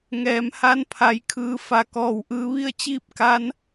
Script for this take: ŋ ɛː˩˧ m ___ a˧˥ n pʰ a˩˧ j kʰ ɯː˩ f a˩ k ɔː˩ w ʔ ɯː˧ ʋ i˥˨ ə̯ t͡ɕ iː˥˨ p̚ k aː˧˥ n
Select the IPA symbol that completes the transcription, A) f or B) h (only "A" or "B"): B